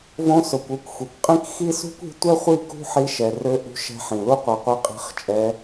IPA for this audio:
v õ˧ s o˨ kʷ ø˧ kʷ xʷ i˨ kʷ qʼ ĩ˦ k x i˦ s ṳ˦ kʷ i̤˧ tʷ ɛ˦ χʷ i˦˨ k ṳ˦ ħ i˧ ʃ ɛ˨ r ø˧ ʔ ṳ˧ ʃ ɛ̤˧ ħ ĩ˨ l u˦ qʷ ɛ˧ qʷ i˧ qʼ i̤˧ χ t͡ʃʼ ɛ˧

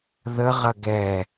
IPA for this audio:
ð ə ʁ ɐ ɡ ɛ

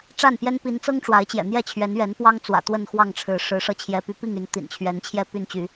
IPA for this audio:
ʈ͡ʂ a˥˨ n p j ɛ˦ n p i˨˦ n t͡s ɤ˦ ŋ ʈ͡ʂ w a˨˦ ɪ̯ t͡ɕ j ɛ̰˨˩ n̪ j ɛ˥˨ t͡ɕʰ ɥ ɛ˨˦ n ɥ ɛ˨˦ n p w ɑ˦ ŋ t͡s w ä̰˨˩ t̪ w ə˥˨ n x w ɑ˥˨ ŋ ʈ͡ʂʰ ɻ̩˨˦ ʂ ɻ̩˨˦ ʂ ɤ˧ t͡ɕʰ j ɛ˨˦ p y˨˦ p i˥˨ ŋ y˨˦ n t̪ ḭ˨˩ n t͡ɕʰ ɥ ɛ˨˦ n t͡ɕʰ j ɛ˥˨ p y˥˨ n t͡ɕ y˨˦

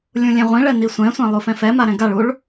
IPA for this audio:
lʲ ũ lʲ ẽ ʁʷ ĩ ɭ ɛ n i sʷ ɛ̃ sʷ ã lˠ u f ɛ̃ f ɛ m a ɾ ɛ̃ ɡ a ɭ u ɭ

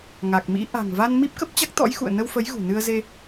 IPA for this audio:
ŋ a˨˩ k̚ m ḭ˧˥ ʔ a̤˨˩ ŋ v a˧ n m i˦˥ p̚ k ə˦˥ p̚ t͡ɕ a˦˥ k̚ t̪ ɔ̰˧˥ j x ṵ˧˨ ə̯ n ə˧ w f ə˨˦ j ɣ ṳ˨˩ n ɨ˧ ə̯ z e˧

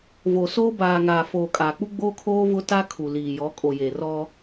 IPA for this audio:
v o˨ s oː˦ b aː˨ ŋ aː˨ f oː˨ kʼ aː˨ k͡p u˦ ɡ͡b oː˦ kʰ oː˦ v ʊ˦ t a˦ kʰ u˨ l iː˨ j ɔ˨˦ kʼ o˨ j e˨ r ɔ˦

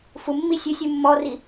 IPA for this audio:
f u mː i sʲ ɘ sʲ u mː ɔ r i

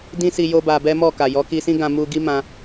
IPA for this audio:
d ĩ˦ s i˧ j o˦ b a˧ b ɛ˦ m ɔ˦˨ k a˨ j ɔ˨˦ k i˧ s ĩ˦ ɡ ã˧ m u˧ ɡ i˦ m ã˧

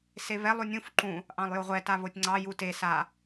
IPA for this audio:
s e β ɛ lˠ u nʲ ũ f ǃ ũ | ʔ ɑ̃ lˠ j o ʁʷ ɛ t a β o tʲ ŋ͡ǀ ɑ j u t e s a

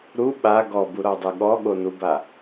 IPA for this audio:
ɾ u ɓ a ɡ ɔ b u ɾ ɔ dˤ ɯ ɠ ɔ ɠ o n u b a

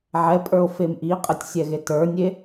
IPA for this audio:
ʕ ɛ pʼ ə˞ o̯ f e m ʔ i qʼ ɘ tʲ sʲ ɛ ɣ e t ə˞ nʲ e

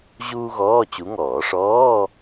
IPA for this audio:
ʑ uː˥ ɣ ɔː˧˥˧ t͡ɕ u˨˦ ŋ ɔː˨˩˦ ʂ ɔː˧˥˧

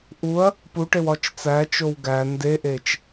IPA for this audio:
ʔ u ɐ̯ | p u ʈ e w ɒ t͡ʃ t͡s æ t͡ʃ o w ɡ æ n d e ʔ e t͡ʃ

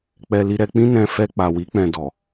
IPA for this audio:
k͡p ɛ˧ l i˧ ɾ ɛ˧ k͡p ĩ˦ n ɛ̃˧ f ɛ˧ k͡p a˨ w i˨˦ k͡p ɛ̃˧ d ɔ˨

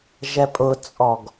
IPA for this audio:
ʒ ɛ pʼ ʊ t͡sʼ ɔ ɡ

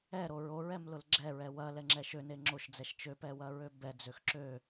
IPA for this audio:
ɛ ɾ o ɹ o ɹ ɛ m l ʊ l ɡ͡ǁ ɛ ɹ ɛ w ɐ l ɛ ŋ͡ǁ ɛ ʃ ø n e ŋ͡ǁ o ʃ d͡z ɛ ʃ t͡ʃ ø p ɛ w ɐ ɹ ø b ɛ d͡z ø x ǁ ø

